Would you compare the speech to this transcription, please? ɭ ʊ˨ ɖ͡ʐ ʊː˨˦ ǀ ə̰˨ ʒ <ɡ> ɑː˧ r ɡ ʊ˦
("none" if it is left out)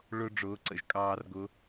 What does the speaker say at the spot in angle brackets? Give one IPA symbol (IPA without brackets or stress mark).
kʼ